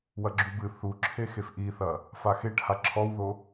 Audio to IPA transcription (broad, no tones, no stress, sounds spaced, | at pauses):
w ɐ ɡ͡ǁ u b ɨ θ u ǁʰ e x e f ʔ i θ ɐ | f a x e ʈ h a ǁʰ ɔ w ð o